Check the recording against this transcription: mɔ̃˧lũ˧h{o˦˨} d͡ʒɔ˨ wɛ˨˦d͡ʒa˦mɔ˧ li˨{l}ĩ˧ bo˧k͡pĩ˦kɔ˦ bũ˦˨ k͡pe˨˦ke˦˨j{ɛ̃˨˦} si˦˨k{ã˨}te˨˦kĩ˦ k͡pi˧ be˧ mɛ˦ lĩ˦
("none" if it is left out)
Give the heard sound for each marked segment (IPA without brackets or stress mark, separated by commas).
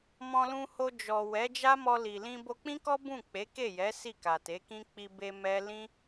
o˧, l, ɛ˨˦, a˨